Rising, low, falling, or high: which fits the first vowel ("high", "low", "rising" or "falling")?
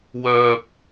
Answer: low